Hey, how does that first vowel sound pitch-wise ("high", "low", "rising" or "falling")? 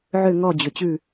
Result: falling